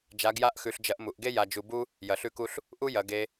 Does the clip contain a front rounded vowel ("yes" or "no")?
no